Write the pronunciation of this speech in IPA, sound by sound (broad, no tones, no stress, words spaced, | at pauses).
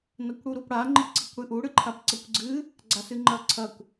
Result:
nɐkʷɽuɾupɽa ŋ͡ǃiǀikʷɽɨʔu ɽɨǃʰapǀɐkʷɡ͡ǀɨ | ɡ͡ǀasɨŋ͡ǃɐǀʰɐkʷ